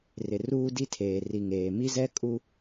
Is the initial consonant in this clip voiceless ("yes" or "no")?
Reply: no